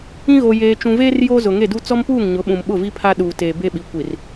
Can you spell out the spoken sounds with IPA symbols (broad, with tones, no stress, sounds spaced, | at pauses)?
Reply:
ĩ˦ ɣ o˨ j eː˨ t͡ʃ ũ˨ v eː˦ r j oː˦ z ʊ˨ ŋ e˦˨ d u˦ t͡s ɔ˦ m p uː˦˨ ŋ ɲ ʊ˨˦ ɓ ũ˨ m ɓ ʊ˦˨ v i˦ pʰ a˦ ɗ uː˨ t eː˨ b e˦ ɓ i˨ kʷ i˨ r